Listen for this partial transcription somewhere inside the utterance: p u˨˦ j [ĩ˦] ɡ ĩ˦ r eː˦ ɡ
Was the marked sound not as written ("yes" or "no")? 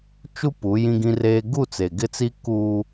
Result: no